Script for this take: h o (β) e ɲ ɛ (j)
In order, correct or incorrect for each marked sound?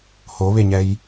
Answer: correct, correct

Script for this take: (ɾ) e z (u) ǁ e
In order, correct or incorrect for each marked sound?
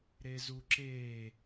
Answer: correct, correct

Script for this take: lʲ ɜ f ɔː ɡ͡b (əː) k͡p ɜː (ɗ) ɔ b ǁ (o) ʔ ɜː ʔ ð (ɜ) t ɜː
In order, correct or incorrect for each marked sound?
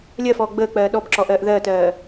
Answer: correct, correct, incorrect, incorrect

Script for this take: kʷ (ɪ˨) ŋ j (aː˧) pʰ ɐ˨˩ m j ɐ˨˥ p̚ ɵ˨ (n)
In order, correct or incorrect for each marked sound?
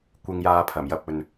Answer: incorrect, correct, correct

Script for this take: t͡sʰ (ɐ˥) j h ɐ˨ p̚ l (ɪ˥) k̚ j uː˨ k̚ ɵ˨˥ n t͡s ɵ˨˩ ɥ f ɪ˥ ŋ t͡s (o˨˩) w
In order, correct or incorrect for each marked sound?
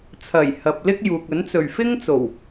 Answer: incorrect, correct, correct

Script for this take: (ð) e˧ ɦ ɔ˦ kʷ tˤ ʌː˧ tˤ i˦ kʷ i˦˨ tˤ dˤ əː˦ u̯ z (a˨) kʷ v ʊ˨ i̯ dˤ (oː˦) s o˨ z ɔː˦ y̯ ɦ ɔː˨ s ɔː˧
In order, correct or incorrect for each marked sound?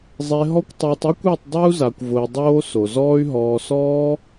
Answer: incorrect, correct, correct

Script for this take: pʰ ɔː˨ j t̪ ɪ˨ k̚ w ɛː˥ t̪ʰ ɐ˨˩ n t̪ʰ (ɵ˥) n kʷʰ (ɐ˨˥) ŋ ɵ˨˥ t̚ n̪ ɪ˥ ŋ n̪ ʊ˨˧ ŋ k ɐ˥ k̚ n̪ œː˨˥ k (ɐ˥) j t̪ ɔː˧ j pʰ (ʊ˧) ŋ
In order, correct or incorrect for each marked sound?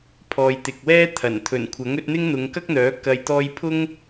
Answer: incorrect, correct, incorrect, incorrect

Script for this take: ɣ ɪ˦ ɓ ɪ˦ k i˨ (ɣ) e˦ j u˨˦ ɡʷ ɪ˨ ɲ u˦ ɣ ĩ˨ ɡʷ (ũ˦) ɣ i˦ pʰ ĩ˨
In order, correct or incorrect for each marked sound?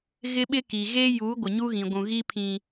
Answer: correct, incorrect

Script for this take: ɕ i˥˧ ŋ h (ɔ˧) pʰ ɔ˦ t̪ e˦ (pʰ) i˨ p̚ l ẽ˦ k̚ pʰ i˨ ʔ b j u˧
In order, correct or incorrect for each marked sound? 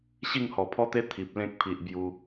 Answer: incorrect, incorrect

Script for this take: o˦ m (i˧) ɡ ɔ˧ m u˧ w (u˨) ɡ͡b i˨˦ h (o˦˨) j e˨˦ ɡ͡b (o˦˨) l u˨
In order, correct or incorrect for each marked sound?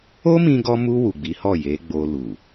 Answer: incorrect, correct, incorrect, incorrect

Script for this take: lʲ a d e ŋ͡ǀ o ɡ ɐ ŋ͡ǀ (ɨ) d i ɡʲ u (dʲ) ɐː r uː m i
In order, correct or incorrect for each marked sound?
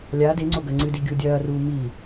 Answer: correct, correct

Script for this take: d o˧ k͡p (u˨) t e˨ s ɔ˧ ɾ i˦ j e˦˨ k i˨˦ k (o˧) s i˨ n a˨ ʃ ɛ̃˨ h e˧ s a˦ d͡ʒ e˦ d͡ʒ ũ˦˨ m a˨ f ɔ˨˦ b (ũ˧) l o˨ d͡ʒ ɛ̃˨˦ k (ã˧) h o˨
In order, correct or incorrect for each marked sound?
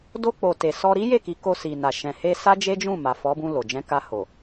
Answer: incorrect, correct, correct, incorrect

